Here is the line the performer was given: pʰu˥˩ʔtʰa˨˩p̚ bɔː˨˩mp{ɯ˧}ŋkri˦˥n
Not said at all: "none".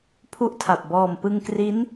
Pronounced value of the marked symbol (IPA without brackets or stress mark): ɯ˧